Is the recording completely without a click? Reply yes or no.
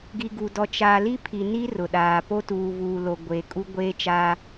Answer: yes